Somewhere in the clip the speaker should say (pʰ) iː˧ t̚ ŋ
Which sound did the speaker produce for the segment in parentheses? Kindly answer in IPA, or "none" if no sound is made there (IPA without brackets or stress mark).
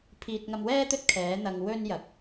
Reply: pʰ